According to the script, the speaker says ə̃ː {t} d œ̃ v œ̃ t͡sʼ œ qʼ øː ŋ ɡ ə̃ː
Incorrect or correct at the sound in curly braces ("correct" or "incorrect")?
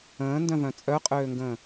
incorrect